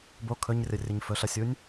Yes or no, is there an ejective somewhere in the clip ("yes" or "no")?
no